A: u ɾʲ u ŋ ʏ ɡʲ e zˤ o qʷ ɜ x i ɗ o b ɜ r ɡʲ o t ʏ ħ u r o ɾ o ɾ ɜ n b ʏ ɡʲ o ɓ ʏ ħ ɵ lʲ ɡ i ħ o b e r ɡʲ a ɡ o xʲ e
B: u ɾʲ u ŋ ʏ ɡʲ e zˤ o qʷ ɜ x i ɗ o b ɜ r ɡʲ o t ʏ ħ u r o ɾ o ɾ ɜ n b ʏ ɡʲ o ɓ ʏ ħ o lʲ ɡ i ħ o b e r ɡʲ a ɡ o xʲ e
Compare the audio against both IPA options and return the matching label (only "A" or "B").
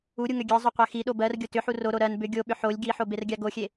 B